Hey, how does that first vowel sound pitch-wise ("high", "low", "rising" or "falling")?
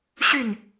falling